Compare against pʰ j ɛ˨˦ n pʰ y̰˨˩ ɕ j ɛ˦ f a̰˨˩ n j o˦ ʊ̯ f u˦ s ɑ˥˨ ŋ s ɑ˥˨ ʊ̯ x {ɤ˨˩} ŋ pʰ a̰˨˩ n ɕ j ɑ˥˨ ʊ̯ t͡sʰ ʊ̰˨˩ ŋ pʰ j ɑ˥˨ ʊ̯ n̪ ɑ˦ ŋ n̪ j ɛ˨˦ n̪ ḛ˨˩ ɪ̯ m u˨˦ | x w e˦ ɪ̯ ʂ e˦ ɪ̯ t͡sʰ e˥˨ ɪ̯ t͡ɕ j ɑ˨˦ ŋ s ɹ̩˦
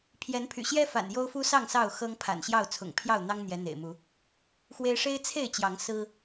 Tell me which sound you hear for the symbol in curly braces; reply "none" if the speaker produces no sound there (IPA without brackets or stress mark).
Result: ɤ˦